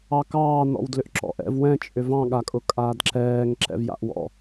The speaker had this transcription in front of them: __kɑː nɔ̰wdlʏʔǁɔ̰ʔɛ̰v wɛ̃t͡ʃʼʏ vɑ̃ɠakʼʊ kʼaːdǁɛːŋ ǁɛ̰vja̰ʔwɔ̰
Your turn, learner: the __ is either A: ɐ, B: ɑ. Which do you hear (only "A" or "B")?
B